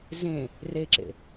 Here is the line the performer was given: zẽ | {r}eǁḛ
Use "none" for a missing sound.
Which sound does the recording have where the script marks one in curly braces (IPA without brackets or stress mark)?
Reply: r